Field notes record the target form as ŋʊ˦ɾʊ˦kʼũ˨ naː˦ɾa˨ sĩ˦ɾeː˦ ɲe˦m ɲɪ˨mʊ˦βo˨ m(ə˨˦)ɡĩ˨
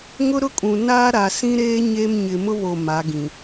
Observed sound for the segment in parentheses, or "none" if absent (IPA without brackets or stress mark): a˨˦